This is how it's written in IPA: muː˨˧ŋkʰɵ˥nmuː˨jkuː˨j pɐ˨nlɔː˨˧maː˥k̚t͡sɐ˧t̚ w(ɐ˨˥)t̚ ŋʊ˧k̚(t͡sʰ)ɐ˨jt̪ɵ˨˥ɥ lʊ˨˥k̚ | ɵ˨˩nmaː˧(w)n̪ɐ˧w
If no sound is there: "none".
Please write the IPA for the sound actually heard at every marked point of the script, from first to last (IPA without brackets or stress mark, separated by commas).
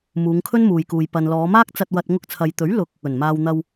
ɐ˧, t͡sʰ, w